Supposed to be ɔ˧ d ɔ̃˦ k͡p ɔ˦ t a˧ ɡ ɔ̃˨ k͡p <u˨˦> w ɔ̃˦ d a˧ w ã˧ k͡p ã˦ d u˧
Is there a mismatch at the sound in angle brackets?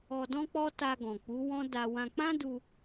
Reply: no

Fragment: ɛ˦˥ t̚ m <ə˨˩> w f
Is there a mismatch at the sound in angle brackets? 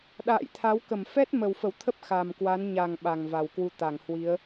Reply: no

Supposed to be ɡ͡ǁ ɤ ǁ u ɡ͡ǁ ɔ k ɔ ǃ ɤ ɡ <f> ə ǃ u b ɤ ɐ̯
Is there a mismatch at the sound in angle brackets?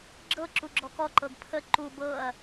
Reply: yes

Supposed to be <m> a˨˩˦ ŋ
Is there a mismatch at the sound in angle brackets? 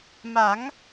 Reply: no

